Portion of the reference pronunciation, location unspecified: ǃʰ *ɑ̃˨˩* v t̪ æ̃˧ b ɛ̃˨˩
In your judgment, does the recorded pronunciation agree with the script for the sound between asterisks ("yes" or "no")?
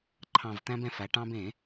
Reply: yes